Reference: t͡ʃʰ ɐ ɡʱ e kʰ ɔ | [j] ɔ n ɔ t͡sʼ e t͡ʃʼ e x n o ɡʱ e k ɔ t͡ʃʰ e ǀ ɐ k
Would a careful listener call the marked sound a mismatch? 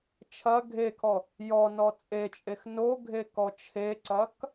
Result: no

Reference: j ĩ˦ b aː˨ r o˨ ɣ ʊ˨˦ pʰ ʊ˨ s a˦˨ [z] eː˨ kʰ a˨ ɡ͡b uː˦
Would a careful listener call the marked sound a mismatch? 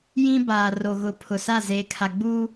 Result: no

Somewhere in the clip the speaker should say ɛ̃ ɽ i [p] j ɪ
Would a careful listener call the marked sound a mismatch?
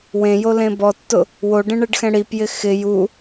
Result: no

